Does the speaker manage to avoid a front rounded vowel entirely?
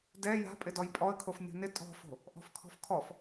yes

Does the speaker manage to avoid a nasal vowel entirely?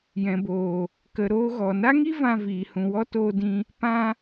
no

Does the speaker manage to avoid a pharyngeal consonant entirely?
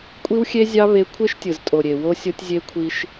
yes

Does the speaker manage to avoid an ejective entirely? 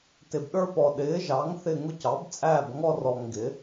no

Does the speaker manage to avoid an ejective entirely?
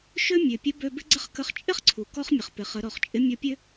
no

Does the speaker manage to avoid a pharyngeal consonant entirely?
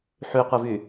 no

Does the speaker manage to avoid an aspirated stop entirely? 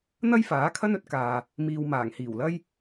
no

